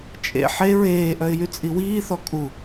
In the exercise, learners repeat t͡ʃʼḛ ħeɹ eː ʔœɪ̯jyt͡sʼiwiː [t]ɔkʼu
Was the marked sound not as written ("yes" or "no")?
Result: yes